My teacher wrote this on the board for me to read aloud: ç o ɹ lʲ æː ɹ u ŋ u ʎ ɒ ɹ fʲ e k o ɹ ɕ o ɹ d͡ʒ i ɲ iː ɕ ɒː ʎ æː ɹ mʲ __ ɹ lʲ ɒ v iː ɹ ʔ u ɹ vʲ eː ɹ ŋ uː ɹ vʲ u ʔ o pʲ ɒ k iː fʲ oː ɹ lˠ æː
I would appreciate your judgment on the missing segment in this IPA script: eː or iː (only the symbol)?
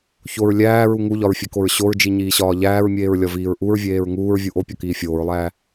eː